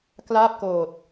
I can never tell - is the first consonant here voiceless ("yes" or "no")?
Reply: yes